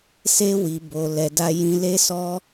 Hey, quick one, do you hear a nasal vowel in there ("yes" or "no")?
yes